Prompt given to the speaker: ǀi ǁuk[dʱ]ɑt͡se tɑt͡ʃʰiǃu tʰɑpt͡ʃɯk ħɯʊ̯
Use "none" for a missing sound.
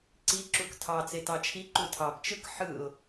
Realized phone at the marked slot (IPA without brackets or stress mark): tʰ